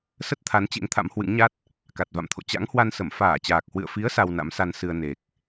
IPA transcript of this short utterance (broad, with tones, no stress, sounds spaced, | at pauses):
s ə˦˥ t̚ t̪ʰ a˨˦ n t͡ɕ ḛ˧˥ ŋ t̪ʰ a̰˧˥ m h w ɨ̰˧˥ ŋ ɲ a˦˥ t̚ | k a˨˩ t̚ v a̰˧˨ m t̪ʰ o̰˧˨ t͡ɕ a̰˧˥ ŋ h w a˧ n s ə˧˩ m f aː˧˩ t͡ɕ aː˨˩ k̚ h w ɨ̰˧˨ ə̯ f i˨˦ ə̯ s a˧ w n a̰˧˥ m s a˧ n s ɨ˧ ə̯ n e˨˩ k̚